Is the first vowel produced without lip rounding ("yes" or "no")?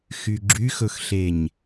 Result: no